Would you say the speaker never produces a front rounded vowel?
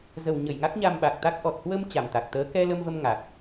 yes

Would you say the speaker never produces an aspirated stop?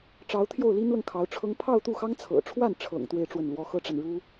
no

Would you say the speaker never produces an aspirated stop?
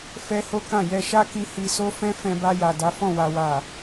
yes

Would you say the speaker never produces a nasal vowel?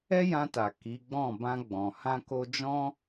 no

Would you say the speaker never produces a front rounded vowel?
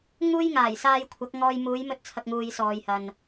yes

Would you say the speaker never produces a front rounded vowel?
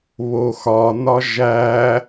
yes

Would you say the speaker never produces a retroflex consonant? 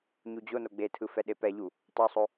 yes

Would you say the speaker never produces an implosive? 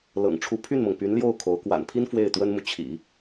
yes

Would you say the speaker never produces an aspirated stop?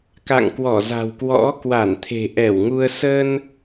no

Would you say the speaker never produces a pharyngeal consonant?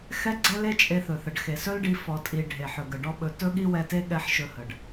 no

